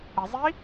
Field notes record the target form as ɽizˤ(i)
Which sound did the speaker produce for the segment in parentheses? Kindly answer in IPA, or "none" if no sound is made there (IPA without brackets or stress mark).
i